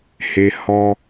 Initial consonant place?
glottal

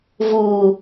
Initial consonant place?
labial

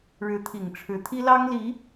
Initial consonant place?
retroflex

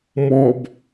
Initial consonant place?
labial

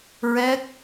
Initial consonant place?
alveolar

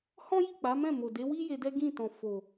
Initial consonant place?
glottal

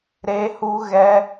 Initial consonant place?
alveolar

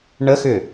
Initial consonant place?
retroflex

